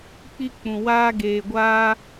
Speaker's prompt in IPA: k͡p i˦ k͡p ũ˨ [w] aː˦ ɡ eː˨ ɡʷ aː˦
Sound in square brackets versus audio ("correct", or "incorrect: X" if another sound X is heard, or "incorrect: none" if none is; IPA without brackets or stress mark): correct